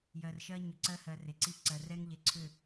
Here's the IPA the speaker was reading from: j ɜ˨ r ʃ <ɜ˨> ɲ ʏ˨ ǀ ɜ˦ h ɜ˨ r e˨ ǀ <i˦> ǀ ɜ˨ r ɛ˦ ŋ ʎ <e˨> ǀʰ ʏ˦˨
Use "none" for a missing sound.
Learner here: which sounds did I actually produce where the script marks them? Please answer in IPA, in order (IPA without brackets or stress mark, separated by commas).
ɜ˦, i˦, e˨